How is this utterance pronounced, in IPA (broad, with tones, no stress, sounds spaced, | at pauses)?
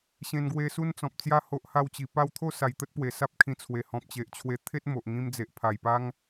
ɕ ẽ˧ n ɡ w e˧ s u˦ n t͡s ɔ̃˨ p̚ t͡s j a˥˧ h o˦ ʔ h a˥˧ w t͡ɕ i˧ p a˦ w t̪ʰ o˥˧ s a˨˩ j t̪ ə˦ t̚ p w e˨˩ s a˦ p̚ kʰ ĩ˧ t͡sʰ w e˨˩ h ɔ̃˨ p̚ t͡ɕ e˨ ʔ t͡ɕʰ w e˧ t̪ʰ e˦ t̚ m o˨ ʔ ŋ ĩ˧ m d͡z e˨ ʔ pʰ a˨˩ j p a˦ ŋ